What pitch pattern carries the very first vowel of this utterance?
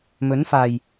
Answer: rising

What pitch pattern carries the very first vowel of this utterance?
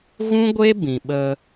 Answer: high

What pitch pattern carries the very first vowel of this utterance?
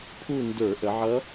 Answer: falling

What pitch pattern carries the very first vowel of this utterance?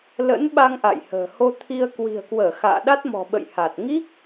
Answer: rising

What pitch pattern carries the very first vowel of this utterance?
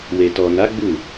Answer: low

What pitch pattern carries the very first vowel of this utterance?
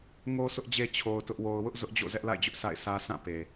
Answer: high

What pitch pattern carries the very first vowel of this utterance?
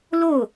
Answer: falling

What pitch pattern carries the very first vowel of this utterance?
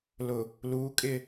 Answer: low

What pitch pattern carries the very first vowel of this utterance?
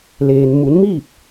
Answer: low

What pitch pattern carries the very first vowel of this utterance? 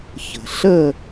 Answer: low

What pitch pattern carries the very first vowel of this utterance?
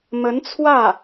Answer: rising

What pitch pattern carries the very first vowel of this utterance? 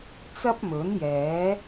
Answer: high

